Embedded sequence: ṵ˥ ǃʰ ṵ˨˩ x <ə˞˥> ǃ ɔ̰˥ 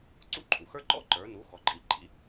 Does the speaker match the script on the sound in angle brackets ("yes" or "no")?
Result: yes